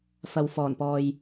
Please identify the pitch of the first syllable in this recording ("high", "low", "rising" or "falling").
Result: low